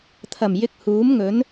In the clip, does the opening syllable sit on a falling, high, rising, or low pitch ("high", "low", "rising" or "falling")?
low